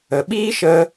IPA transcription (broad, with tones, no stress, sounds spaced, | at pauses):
ə˨ ɓ iː˦ ʃ ə˧